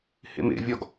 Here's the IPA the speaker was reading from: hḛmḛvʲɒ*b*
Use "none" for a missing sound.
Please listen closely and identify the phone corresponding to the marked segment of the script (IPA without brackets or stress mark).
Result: ɡ